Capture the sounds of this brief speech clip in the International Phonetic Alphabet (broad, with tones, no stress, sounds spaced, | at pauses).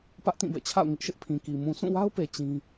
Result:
p ä˦ ʔ t ĩ˦˨ b ɛ̰˦˨ t͡ɕʰ a̰˦˨ ʊ̯ ŋ ɪ˦ ʔ ʃ ɪ˦ ʔ pʰ ĩ˨ k i˨ m ũ˨ s ũ˦˨ w a˦ ʊ̯ p e˨ t͡ɕ ĩ˦